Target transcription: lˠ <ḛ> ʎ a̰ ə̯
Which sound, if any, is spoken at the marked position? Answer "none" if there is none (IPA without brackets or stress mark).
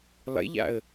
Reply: ḛ